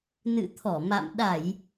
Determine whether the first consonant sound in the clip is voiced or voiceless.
voiced